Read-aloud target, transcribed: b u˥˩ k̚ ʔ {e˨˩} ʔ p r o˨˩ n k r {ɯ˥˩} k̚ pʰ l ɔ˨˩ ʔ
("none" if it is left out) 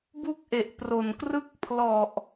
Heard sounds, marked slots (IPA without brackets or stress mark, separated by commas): e˨˩, ɯ˥˩